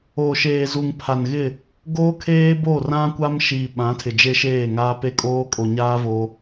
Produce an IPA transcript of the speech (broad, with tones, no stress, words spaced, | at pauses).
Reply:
oː˨ʃeː˨zu˨ŋ pʰa˨nɣɪ˦˨ | ɡoː˦kʰeː˦bo˦˨ rã˦kʷa˦m ʃiː˨ɓã˨˦tʰɪ˨ d͡ʒe˦ʃeː˦˨ŋaː˦ pe˦kʼoː˦kʼo˨ɲaː˦ vo˦